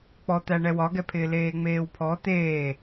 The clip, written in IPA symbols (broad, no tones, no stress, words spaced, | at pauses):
k͡pɔt̪æ ɳɛwɒɡɛpʰɪː leːŋ͡meːwpʰɔ t̪eː